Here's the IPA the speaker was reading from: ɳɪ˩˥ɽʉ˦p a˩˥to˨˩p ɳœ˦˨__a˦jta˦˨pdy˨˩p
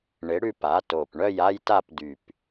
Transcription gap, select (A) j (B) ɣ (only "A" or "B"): A